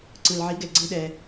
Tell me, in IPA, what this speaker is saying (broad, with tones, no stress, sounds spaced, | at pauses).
ǀ ɯ˨ l ʕ i˨˦ ɡ ɛ˨ ɡ͡ǀ ɯ˦ ɗ ɛ˧